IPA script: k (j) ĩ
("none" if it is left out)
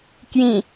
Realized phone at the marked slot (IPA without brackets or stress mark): j